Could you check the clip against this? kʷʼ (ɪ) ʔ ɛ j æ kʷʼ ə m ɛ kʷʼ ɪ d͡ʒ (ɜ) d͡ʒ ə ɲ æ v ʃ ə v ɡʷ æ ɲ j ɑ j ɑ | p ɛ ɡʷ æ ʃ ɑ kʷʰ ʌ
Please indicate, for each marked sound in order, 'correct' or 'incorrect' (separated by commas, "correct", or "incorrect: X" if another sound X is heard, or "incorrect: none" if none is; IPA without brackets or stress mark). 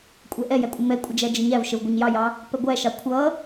incorrect: ɛ, incorrect: æ